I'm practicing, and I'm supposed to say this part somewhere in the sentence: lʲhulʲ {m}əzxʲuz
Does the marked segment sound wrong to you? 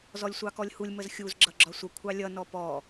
no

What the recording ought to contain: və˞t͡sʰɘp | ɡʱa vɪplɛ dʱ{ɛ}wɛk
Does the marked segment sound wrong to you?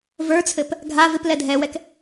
no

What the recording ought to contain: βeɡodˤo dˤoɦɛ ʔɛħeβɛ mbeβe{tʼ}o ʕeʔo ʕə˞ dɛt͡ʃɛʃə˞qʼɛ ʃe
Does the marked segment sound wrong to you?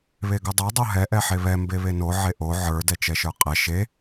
yes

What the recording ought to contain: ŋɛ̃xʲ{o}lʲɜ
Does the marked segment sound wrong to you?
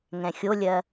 no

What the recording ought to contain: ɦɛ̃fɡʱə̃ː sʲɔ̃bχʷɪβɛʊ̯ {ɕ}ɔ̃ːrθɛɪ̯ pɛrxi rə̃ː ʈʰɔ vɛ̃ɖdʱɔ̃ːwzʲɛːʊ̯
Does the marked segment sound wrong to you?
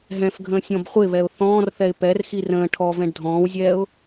yes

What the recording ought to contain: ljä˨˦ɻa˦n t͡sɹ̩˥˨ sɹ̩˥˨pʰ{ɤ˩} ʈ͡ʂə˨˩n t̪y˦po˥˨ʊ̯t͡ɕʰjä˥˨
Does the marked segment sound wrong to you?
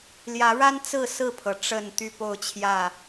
no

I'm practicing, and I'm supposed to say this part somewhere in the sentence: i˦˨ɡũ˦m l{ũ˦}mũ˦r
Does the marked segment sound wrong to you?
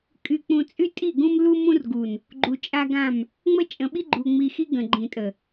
yes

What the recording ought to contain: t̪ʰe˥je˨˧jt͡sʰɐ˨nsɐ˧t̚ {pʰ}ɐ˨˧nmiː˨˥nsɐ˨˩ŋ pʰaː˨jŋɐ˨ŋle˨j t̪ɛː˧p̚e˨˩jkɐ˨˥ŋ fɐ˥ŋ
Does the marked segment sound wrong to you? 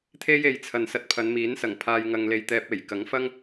no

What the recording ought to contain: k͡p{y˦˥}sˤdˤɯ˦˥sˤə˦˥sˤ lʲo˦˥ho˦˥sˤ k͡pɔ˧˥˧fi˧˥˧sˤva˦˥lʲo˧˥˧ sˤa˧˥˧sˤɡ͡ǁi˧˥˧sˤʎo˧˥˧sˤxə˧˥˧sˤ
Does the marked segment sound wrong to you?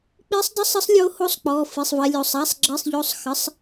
yes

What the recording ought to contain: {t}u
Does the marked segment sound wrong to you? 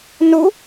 yes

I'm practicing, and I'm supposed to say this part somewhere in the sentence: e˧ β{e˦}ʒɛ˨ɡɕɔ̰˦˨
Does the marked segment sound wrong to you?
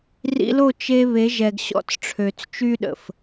yes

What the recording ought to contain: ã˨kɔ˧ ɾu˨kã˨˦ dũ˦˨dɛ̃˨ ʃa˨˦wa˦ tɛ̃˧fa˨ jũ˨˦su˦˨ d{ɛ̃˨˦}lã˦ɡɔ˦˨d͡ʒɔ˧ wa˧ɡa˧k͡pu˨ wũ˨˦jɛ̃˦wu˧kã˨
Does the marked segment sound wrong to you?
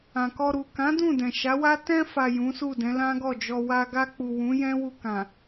no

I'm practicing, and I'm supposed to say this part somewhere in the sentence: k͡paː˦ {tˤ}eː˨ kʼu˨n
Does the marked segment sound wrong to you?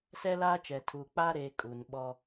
yes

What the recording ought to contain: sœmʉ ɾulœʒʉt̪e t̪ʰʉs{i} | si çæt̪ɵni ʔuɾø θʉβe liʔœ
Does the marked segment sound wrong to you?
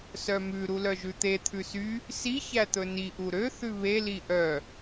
yes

